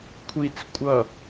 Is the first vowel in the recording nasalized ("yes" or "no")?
no